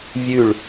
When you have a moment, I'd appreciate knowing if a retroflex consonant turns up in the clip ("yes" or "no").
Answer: yes